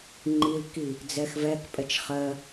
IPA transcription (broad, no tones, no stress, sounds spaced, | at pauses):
ŋ͡ǃ i l k i | d͡z ɛ x v ɛ k pʼ ɛ t͡ʃ χ ɜ